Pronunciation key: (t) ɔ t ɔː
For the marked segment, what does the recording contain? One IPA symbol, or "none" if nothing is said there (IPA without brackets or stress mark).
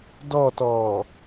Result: d